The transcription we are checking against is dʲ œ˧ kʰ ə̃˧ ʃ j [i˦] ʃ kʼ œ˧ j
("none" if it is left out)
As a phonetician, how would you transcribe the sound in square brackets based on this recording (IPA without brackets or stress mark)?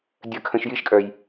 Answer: i˦